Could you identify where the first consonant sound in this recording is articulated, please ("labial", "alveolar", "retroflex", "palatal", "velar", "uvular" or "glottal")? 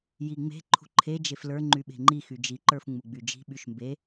palatal